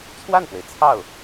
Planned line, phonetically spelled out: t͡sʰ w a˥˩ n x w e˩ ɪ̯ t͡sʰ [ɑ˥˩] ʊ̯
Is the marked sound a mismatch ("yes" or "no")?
no